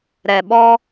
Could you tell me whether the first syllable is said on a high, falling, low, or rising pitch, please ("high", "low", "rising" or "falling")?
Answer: low